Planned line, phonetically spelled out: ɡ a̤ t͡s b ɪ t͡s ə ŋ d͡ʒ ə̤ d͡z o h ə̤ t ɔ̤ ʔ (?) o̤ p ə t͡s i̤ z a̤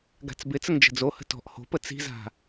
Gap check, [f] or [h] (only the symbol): h